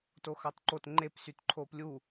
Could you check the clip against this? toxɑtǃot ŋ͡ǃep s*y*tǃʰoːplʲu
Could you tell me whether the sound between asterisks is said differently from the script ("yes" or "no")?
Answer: no